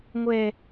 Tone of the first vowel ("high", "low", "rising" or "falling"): falling